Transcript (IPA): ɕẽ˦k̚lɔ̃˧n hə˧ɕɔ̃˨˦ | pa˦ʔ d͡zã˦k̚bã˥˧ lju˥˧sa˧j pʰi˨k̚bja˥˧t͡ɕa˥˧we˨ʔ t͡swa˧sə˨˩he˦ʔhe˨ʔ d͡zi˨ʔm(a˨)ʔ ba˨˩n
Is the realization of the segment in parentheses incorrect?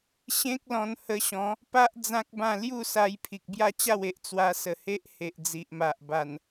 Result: no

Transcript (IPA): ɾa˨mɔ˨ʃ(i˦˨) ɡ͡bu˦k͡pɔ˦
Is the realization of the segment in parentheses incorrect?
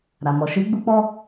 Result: yes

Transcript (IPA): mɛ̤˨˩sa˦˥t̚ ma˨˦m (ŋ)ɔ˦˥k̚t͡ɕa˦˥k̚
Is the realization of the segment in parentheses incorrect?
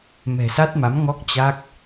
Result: no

